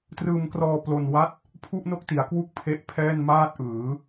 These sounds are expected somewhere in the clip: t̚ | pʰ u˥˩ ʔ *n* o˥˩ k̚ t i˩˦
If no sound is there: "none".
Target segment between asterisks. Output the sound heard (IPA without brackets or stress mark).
n